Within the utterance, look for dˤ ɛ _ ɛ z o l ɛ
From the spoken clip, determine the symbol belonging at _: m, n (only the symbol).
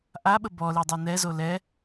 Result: n